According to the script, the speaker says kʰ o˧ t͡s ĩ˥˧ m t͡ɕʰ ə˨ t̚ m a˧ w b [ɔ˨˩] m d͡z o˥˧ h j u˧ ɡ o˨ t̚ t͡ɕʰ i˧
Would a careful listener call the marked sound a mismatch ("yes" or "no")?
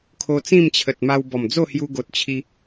no